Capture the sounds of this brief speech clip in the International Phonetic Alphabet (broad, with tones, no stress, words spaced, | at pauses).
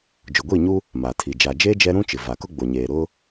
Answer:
d͡ʒʊ˨ɡʷiː˦˨ɲu˦ | ma˨tʰi˨ d͡ʒa˨d͡ʒeː˦ d͡ʒɛ˦ ɾũ˦t͡ʃɪ˨va˨kʊ˦ ɡ͡bo˨ɲeː˨ ɾʊ˦